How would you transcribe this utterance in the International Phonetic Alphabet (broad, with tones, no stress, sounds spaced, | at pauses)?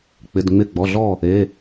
k͡p ɪ˩˧˩ d ŋ͡m ɪ˧˩ ɡ͡b ɔ˩˧˩ ɮ ɔ˥˩ | e˩˧˩